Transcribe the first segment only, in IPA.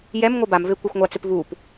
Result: j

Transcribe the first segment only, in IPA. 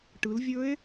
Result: ʈ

